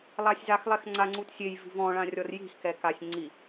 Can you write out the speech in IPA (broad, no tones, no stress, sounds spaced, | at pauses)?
lˠ a sʲ z a x lˠ ɛ x ŋ͡ǀ a ŋ͡ǀ u t sʲ e j v i̤ v ɔ̃ ɭ ã rʲ ɔ r j i̤ x k ɛ k a sʲ ŋ͡ǀ i